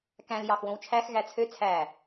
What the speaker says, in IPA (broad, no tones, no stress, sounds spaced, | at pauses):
k æ̃ l j ɑ x w õ w t͡ʃʰ æ x ɣ æ t͡sʰ ø t͡sʰ æ